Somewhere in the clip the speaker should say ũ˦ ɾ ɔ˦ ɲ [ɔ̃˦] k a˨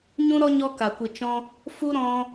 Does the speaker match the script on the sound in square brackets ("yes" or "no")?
no